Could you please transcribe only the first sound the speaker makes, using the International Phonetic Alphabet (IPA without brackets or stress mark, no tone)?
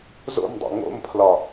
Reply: z